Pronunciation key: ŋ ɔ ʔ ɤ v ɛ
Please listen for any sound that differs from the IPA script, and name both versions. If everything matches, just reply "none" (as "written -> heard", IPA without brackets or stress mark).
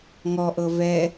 none